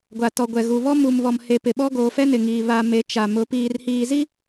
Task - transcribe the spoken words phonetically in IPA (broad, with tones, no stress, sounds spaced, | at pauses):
ɡʷ a˨ t ɔ˨ ɡʷ ɛ˨ ɣ u˨ β ɔ˦ m u˨ m β ɔ˨ m h e˨ p ɪ˨ ɓ ɔ˦ ɡ oː˨ f ɛ˦ n ɪ˨ ŋ iː˨ β a˨ m e˨˦ t͡ʃ a˨ m ʊ˨˦ p iː˨ r h iː˨ z i˦